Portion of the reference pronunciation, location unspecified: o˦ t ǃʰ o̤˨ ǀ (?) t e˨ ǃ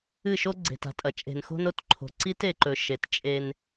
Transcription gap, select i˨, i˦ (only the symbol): i˦